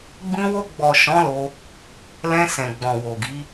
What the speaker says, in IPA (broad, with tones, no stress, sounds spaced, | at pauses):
ɡ͡b ĩ˧ w o˧ ɡ͡b ɔ˨ ʃ ɔ̃˨˦ l o˧ | l ɛ̃˧ s ɛ̃˨ ɡ͡b ɔ̃˨ w o˨ ɡ i˨˦